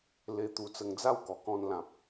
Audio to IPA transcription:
le˧t̪u˧t͡sə˧ŋd͡za˥˧w kɔ˨˩kɔ̃˧nlã˨p̚

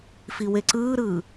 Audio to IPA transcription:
fiweǀɯːɾɯː

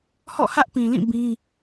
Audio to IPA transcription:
hɔ̰˦˨hä˦ʔpĩ˨lĩ˦˨ bĩ˦

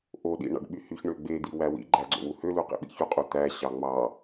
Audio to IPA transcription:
ʔoɗḭ ɳɑ̰ɖɓyhyçɳø ɡ͡bed̪i wæwḭɡ͡ǃæ ɡ͡ǀo̰wuhølu qḭɓḭçuqʼu t̪æɕɑ ŋ͡mɑ

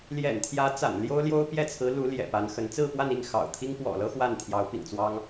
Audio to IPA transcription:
ljɛ̰˨˩nt̪ʰjä˧˥ t͡sa̰˨˩nljo˥ʊ̯ljo˥ʊ̯ pjɛ˥˩t͡sʰɹ̩˧˥ lu˧˥ ljɛ̰˨˩pa˧˥nxə˧˥n t͡sɹ̩˥˧pwa˥˧ni˥˩ŋ xɑ̰˨˩ʊ̯t̪ʰi˥ŋ pwɔ̰˨˩lɤ˥ xwa˥˩nt̪ʰjɑ˧˥ʊ̯pḭ˨˩ŋt͡swɑ˥ŋ

